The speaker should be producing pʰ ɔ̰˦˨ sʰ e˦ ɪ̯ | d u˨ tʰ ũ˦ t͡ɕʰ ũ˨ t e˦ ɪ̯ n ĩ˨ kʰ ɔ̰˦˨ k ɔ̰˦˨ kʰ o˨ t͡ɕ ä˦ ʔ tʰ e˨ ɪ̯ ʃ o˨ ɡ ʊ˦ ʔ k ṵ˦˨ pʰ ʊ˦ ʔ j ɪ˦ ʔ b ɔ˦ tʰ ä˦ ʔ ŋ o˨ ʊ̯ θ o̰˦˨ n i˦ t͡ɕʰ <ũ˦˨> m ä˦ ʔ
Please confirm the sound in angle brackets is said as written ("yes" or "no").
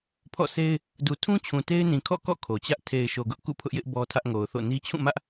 yes